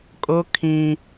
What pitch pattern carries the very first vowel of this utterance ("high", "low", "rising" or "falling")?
high